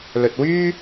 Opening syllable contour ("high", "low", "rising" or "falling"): low